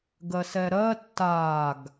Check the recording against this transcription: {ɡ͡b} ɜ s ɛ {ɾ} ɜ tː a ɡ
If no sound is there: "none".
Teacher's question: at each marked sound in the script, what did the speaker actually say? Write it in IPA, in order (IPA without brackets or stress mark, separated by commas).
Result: ɡ, ɾ